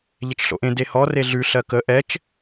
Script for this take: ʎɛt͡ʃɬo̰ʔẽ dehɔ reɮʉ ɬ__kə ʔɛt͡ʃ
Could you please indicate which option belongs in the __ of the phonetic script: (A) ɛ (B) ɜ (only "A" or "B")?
B